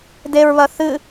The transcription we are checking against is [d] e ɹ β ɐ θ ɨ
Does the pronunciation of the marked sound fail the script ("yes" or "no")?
no